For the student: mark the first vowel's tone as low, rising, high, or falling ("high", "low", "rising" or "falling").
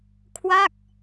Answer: falling